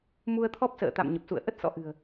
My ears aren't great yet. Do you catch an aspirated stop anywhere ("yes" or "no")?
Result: yes